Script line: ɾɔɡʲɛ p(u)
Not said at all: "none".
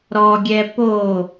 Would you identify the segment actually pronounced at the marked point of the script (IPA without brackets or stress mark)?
o